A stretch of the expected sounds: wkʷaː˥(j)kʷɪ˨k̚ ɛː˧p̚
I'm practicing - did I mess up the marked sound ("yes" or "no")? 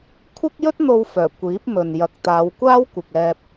yes